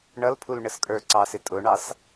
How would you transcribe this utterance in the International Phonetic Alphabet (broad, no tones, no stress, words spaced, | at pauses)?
ɳʌlpʰul ɳəskʼə˞ǀɑsɪ tʼʊɳɑs